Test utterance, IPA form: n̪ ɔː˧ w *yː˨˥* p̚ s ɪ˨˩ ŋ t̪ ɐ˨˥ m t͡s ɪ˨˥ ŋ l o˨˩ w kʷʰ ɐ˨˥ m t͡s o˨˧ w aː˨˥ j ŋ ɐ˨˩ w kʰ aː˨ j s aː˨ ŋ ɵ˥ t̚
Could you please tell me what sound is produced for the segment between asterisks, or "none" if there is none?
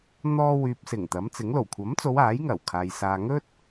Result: yː˨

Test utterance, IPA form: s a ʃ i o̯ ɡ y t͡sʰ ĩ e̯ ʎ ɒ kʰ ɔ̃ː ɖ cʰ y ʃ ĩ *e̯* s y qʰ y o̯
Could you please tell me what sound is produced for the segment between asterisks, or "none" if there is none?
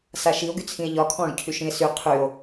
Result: e̯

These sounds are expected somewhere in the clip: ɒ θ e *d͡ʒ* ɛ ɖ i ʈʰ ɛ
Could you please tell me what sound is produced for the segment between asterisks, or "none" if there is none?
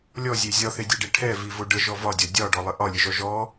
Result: dʲ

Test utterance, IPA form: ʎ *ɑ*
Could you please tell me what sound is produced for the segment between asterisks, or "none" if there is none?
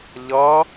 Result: ʌ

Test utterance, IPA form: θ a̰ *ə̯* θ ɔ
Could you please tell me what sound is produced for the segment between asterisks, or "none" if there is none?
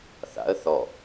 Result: ə̯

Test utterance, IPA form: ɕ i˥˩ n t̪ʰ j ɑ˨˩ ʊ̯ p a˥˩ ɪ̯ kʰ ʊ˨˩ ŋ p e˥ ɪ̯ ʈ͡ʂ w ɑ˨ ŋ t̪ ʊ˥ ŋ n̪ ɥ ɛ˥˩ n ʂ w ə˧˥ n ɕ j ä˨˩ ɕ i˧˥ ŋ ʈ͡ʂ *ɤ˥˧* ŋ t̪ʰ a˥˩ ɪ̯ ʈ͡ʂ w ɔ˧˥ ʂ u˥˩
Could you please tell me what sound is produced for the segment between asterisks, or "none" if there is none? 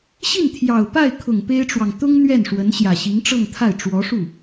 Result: ɤ˥˧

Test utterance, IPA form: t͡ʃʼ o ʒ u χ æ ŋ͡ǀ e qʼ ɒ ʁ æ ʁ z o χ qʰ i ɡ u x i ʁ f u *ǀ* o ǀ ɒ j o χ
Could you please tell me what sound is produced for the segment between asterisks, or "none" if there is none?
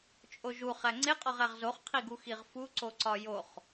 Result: ǀ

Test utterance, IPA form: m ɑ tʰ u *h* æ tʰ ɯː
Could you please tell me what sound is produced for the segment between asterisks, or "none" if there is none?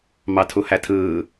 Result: h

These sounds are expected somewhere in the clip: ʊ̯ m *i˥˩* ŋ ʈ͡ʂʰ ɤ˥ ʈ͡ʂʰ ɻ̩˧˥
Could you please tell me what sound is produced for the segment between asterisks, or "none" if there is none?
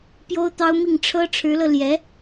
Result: i˥˩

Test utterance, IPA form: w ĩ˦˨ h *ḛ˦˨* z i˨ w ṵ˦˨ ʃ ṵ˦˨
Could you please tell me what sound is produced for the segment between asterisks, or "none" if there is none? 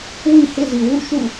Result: ḛ˦˨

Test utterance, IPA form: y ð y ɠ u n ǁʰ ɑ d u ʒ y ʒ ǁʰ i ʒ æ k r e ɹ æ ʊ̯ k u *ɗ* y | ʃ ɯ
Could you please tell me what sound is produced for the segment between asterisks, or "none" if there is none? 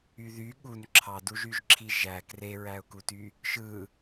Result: t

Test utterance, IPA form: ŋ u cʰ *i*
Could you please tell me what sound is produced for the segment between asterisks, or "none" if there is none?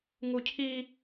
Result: i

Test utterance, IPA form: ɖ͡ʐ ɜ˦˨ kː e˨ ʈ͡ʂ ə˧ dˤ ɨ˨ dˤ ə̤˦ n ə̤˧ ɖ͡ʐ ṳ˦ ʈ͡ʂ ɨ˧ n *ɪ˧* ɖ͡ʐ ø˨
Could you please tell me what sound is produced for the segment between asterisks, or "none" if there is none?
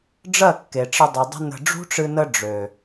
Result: ə˧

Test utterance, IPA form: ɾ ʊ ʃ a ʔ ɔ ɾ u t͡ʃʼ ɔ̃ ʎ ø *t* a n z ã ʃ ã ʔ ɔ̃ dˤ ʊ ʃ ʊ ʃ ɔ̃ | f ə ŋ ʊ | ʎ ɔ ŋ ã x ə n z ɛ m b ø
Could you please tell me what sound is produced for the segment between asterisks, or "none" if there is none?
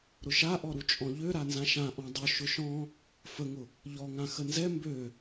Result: ɾ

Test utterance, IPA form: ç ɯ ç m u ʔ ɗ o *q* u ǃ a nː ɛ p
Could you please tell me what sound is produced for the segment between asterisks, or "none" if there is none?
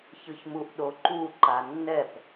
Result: ǃ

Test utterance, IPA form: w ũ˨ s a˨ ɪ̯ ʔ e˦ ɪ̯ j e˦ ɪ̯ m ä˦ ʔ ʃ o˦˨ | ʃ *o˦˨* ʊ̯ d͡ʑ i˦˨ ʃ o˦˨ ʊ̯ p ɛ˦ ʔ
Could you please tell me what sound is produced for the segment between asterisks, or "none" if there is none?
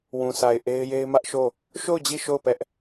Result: o˦˨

